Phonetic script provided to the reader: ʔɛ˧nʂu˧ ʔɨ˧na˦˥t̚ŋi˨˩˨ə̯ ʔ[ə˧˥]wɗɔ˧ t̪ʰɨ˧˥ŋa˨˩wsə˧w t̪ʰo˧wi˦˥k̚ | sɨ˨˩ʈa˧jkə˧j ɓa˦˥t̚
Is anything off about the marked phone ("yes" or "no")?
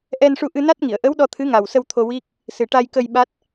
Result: no